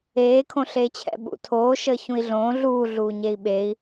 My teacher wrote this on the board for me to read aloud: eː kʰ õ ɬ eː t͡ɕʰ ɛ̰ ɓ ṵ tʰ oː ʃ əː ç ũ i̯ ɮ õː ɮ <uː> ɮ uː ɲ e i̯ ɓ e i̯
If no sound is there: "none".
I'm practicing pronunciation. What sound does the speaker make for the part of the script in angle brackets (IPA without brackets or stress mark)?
uː